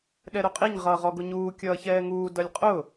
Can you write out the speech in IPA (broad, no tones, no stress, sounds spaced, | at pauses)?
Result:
ɗ ɛ ɾ ʊ qʼ i ɲ ʁ ʌː ʁ ɔ ɡ ʊ ɲ uː kʲ ʌː ç ɛː ŋ uː d ʌ lʲ qʼ ʊ